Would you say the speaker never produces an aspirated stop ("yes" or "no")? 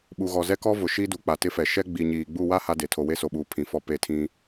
no